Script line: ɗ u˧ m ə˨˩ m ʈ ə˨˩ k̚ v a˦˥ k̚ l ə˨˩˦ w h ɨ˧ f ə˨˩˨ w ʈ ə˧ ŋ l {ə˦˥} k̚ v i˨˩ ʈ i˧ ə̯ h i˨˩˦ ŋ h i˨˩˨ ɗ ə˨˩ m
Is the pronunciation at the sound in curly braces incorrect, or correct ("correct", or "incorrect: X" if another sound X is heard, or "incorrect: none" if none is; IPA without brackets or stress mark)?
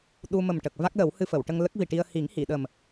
correct